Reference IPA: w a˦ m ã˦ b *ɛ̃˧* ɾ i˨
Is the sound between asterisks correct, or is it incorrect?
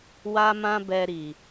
incorrect